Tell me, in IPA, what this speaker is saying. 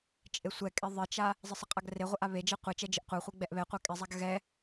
t͡ʃʼ e sʷ ɛ kʼ e ðˤ ɪ t͡ʃ a | zˤ ɪ sˤ ɪ qʼ a ɡ r e ʁʷ ɪ ʔ a β e d͡ʒ ɛ qʷ e t͡ʃ ɛ d͡ʒ ɪ ʔ qʷ a χʷ e ɡ͡b ɛ ʔ β ɛ qʷ ɛ kʼ ɪ zˤ a ɡ ɣ ɛ

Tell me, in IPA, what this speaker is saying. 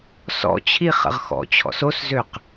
s ɔ̰ t͡ɕʰ i χ ə̰ ʁ x ɔ̰ t͡ɕʰ ɔ̰ s o s z ø q

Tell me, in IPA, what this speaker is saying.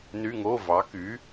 n y˧˥˧ ŋ o˧˥˧ v ɑ˩˥ k y˩˥

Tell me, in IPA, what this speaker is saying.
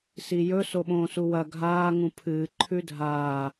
s i j ɵ s o ɓ õː s u w ɐ ɡʱ aː ŋ ũ pʰ ɨː ǃʰ ʉ dʱ aː

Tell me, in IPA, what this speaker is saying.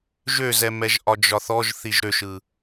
ʒ ø z ɛ m ɛ ʒ ʔ ɒ d͡ʒ ɒ θ ɔ ʒ θ i ʒ ɾ ø ʃ ɯ

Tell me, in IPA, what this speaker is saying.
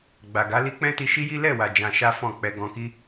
ɡ͡b a˨ ɡ a˨˦ l i˦ k͡p ɛ̃˦ t i˧ ʃ i˦ j i˦ l ɛ˦˨ w a˨ d͡ʒ ã˧ ʃ a˦ f ɔ̃˦˨ k͡p ɛ˨ ɡ ɔ̃˧ k i˦

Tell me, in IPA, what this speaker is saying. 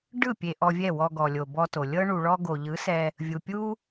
ɖ ɯ˦˨ pʲ e˧ ʔ ɔ˧ vʲ ɛ˦˨ w ɔ˧ ɡ ɔ˨ lʲ o˨ b ɔ˧ t o˨ lʲ ɤ˦ ɳ u˧ ɭ ɔ˦ ɡ o˨ ʎ ɯ˨˦ s ɛ˧ | vʲ u˨ pʲ u˦

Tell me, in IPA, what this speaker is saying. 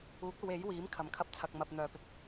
uː˨˥ k̚ ɐ˨˧ w e˨˥ j w iː˨˥ m kʰ ɐ˨ m kʰ ɐ˥ p̚ t͡sʰ ɐ˧ k̚ m ɐ˧ p̚ n̪ œː˨ p ɪ˧ k̚

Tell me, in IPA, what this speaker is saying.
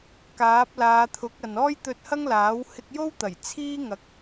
k aː˨˥ p̚ l aː˨˧ t̪ʰ ʊ˨˥ k̚ ɐ˨ n ɔː˥ j t̪ ɵ˧ t̚ h ɐ˥ ŋ l aː˨˥ w h ɪ˧ k̚ j o˥ w t̪ ɐ˨˩ j t͡sʰ iː˥ ŋ ɐ˨˥ k̚

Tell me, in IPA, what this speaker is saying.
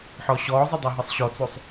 ħ ɔ ɕ ɔː zˤ ɘ dˤ a ɦ ɘ sˤ ɕ ɔ t͡s o sˤ

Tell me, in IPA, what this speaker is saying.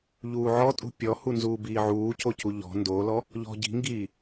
ʎ uː ʕ ɔ tʼ ṳ pʲ ɔ h u n z uː b iː ʕ uː c o c u ʎ ɔ̤ n d o l ɔ | ʎ ɔ̤ ɟ i̤ ŋ ɡ iː

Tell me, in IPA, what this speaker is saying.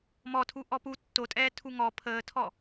m ɔ tʰ u ʔ ɔ p u tː o tʼ ɛː tʰ u ŋ ɔ pʰ əː tʰ ɔ

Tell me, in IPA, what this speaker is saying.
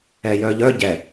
ɛ j œ ʎ œ ɟ ɛ

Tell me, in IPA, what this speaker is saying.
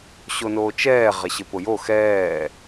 ɕ o n oː t͡ʃ ɛː ʁ ɛ ɕ ɪ p ʊ j o x ɛː

